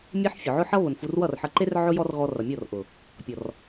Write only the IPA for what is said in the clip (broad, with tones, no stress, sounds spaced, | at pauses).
mʲ e˦ ħ fʲ ʊ˨ ʕ ʊ˦ ħ ʌ˦ β ʊ˨ n f u˧ r w ʌ˦˨ r ħ ʌ˧ ǃ e˦ r ʕ ʊ˦ j ɔ˦ r ɣ ɔ˧ r ʌ˨ mʲ ɔ˦˨ r ʔ ʊ˨ | pʲ ɔ˨ r